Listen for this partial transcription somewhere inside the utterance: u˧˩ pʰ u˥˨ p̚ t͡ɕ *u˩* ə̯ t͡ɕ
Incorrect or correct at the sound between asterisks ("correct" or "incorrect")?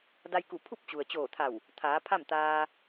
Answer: correct